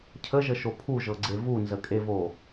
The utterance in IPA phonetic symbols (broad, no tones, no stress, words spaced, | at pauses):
cʰəʒəʃo pʰuʒɤɡ͡ǀe vunzəkʼevo